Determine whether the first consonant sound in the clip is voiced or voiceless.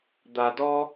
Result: voiced